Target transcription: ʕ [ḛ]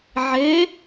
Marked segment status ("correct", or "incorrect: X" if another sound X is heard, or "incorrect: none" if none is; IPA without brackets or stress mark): incorrect: e